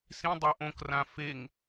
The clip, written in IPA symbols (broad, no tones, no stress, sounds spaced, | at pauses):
s ĩ dˤ a ʔ õ k r ã f e ŋ